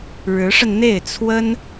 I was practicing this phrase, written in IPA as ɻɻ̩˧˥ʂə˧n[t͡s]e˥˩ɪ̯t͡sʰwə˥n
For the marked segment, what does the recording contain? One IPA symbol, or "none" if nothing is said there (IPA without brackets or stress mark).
n̪